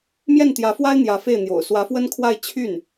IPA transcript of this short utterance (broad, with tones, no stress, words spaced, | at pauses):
mjɛ˥˩nt̪jä˧˥fwa˥ɪ̯ n̪jä˧˥fe˥˩ɪ̯n̪jo̰˨˩ʊ̯ swä˧˥fwə˥nkʰwa˥˧ɪ̯ t͡ɕʰy˥˩n